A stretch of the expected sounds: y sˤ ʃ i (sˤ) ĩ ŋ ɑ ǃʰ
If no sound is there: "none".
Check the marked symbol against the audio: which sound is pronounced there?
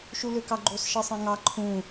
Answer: sˤ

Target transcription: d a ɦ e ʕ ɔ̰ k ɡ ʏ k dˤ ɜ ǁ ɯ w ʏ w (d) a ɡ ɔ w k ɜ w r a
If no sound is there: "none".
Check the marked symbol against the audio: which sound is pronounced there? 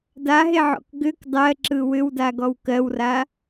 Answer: d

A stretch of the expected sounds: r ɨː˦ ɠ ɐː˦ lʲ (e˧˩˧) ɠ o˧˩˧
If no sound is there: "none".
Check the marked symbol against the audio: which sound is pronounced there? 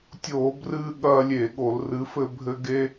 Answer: e˧˩˧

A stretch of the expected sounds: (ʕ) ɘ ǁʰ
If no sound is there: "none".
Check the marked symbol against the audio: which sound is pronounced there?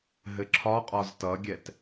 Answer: ɦ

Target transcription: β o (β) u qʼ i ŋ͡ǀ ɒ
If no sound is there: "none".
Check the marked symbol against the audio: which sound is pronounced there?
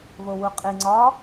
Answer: w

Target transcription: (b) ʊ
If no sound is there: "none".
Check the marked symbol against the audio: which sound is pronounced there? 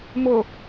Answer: m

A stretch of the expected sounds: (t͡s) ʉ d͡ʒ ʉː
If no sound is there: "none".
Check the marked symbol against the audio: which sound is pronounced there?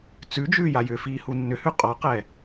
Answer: t͡s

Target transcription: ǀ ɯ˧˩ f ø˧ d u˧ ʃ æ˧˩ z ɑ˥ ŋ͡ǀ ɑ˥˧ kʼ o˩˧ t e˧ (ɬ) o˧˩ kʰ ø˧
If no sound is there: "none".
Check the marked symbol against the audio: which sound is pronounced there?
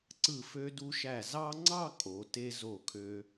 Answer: z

